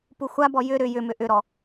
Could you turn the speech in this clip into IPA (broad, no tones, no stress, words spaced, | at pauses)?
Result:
puxʷabɔ jʏ ɾʏ jʏmʏ ʔʏɾɔ